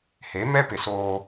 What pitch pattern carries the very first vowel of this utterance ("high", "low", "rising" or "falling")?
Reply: rising